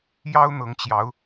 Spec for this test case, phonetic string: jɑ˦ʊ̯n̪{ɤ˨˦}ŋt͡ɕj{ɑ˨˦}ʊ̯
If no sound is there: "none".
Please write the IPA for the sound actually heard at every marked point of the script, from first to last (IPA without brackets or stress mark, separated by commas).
ɤ˨˦, ɑ˨˦